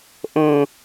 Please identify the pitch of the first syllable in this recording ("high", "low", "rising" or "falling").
low